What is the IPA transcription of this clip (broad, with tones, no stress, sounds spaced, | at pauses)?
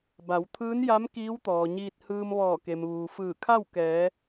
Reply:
b a˩˧ w t̪ʰ ɯː˧˥ n j a˧˥ m k iː˧˥ w t̪ ɔː˩ ɲ iː˧ t̚ h ɯː˧ m ʋ ɔː˧˩ k e˩ m ʋ uː˩ f ɯː˧˩ kʰ a˥˨ w k ɛː˩˧